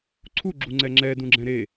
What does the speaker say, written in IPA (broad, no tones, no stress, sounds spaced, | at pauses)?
ǀʰ u ɡ͡ǁ u ŋ͡ǀ ɛ ŋ͡ǁ ɛ d ũ ɡ͡ǁ ɛ̃ ɾ e